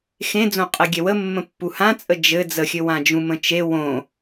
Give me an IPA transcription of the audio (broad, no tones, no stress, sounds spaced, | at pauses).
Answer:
x ẽ d͡z õ qʼ ɛ ɡʲ ɛ w ə mː ə̃ pː u h ã t͡sʼ ə d͡ʒ ɘ d͡z ə xʲ ɘ w ã d͡ʒ ũ m ə̃ t͡ʃ e w õ